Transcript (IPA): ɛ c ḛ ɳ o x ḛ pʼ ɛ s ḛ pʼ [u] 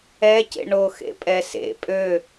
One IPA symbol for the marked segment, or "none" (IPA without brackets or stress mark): ø